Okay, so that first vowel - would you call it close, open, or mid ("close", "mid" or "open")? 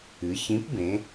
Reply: close